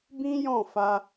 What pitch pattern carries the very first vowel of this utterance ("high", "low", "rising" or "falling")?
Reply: high